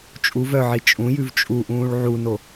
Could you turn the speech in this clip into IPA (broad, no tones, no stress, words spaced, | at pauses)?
t͡ʃʼu vœʕi t͡ʃʼũjʉv t͡ʃʼuʔũːɭ ʕuno